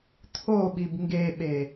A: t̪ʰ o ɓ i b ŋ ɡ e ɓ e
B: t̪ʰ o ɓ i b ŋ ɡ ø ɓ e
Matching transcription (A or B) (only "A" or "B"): A